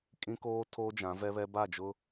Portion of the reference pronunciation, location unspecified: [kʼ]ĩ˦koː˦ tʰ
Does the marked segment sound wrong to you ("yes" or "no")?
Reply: no